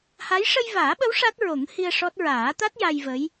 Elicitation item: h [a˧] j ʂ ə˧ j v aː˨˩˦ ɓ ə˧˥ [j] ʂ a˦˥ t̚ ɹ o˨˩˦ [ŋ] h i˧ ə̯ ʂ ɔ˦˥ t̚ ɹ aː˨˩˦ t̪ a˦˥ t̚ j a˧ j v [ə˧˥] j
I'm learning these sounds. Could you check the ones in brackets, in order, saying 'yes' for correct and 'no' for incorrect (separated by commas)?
no, no, yes, yes